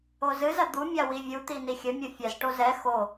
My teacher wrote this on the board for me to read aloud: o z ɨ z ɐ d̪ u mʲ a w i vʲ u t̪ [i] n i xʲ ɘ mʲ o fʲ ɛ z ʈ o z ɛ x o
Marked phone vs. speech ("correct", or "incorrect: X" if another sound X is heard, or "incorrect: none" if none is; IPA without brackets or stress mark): correct